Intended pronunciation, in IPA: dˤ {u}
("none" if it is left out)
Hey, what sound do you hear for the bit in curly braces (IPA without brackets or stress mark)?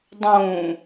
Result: ũ